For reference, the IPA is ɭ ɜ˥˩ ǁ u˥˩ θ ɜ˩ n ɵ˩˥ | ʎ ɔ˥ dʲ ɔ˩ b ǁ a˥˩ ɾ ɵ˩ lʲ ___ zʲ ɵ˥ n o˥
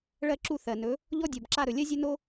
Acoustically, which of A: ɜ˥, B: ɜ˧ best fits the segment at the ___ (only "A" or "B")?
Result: A